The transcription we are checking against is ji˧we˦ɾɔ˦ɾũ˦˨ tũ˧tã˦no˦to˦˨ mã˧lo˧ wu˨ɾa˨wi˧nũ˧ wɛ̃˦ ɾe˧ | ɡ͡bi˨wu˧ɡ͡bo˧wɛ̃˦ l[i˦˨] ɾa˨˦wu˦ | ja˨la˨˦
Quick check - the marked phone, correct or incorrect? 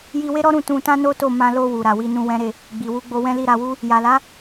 correct